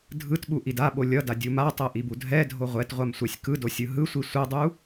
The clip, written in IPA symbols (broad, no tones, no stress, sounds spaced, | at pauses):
dʱ ɯ t ɓ u ʔ i d a ɓ o lʲ ʌ d a dʲ u m a tˤ ɛ ʔ i b u dʱ ɛ dʱ o ʁʷ ɛ t ʁʷ a m sʷ ɛ sʲ k ɯ d o sʲ ɯ ɦ ɯ sʷ i sʷ ɛ dˤ u